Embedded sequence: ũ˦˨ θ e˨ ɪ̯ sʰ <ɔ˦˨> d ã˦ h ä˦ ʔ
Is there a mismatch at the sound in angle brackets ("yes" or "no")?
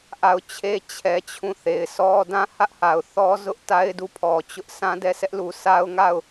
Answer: yes